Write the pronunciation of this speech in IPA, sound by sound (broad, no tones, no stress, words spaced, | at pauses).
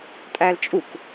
tʼælt͡ʃʼuk